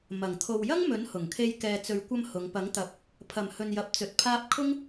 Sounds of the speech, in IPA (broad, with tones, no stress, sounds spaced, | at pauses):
m ɐ˨˩ ŋ t̪ʰ o˨ w j ɐ˥ ŋ m ɵ˨˥ n h ʊ˨˩ ŋ kʰ e˧ j k ɛː˨ t͡s ɵ˨˧ ɥ kʷ ɐ˧ m h ʊ˨˧ ŋ p ɐ˨˥ ŋ t̪ ɐ˨˥ p̚ | pʰ ɐ˨˩ m h ɵ˨ n j ɐ˨ p̚ t͡s ɵ˨ t̚ pʰ aː˥ p̚ kʰ ʊ˥ ŋ